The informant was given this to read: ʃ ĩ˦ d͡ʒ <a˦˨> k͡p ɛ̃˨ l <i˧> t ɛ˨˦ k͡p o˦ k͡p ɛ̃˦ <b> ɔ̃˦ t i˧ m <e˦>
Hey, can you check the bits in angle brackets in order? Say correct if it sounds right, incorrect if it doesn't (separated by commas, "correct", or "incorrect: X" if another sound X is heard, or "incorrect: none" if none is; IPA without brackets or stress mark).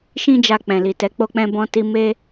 incorrect: a˧, incorrect: i˨, correct, correct